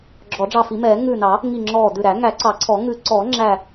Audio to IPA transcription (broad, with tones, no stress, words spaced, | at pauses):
ɡ͡ǁɔ˨˩˦ɖ͡ʐɑ˧˩fi˨˩˦mɛː˨˩˦ ŋʉː˧˩nɑ˨˩˦ | ŋi˧˩ ŋ͡ǁɔː˧˩dʉ˧˩ɾæ˨˩˦ ŋæ˨˩˦ǀɑ˨˩˦ǀʰɔ˨˩˦ ŋʉ˨˩˦ǀɔː˨˩˦ ŋ͡ǁæ˧˩